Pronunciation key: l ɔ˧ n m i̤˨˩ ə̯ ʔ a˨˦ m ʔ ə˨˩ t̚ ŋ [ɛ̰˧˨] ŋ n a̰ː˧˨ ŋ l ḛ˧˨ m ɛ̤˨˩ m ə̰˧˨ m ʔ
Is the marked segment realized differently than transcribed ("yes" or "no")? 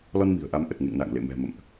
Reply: yes